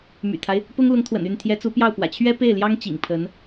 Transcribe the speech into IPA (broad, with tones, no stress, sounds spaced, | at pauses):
m y̰˨˩ t̪ʰ a˦ ɪ̯ | p ʊ˥ ŋ l ʊ˧˥ ŋ t̪ʰ w ə̰˨˩ n y˥˩ n t̪ʰ j ɛ˧˥ t͡s u˧˥ p j ɑ˥˩ ʊ̯ p w ä̰˨˩ t͡ɕʰ ɥ ɛ˥ p e˥˩ ɪ̯ l j ɑ˥ ŋ t͡ɕ ḭ˨˩ ŋ pʰ ə˧˥ n